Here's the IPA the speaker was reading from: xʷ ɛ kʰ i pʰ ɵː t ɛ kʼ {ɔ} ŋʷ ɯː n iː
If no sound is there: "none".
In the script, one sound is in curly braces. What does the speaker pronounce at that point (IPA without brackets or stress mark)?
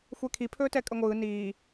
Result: ə